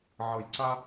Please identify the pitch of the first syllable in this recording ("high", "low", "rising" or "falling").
low